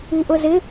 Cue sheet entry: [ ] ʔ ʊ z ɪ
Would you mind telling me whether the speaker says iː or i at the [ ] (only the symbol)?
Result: i